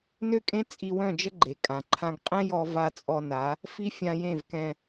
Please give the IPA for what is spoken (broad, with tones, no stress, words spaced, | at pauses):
nø˦kʼẽ˦ t͡sʼi˧wœ̃˦˨d͡ʒə˦ ɡ͡ǃe˨kʼã˨ ǃʰã˧ɡ qʼɛ̃˦jɔ˧ va˧t͡sʼɔ˧na˨˦ | fi˦fʲã˧jẽ˦˨vkɛ̃˧